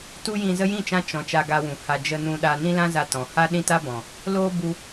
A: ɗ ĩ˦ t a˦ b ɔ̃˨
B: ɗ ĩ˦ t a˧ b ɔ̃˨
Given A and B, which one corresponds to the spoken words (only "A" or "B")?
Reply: A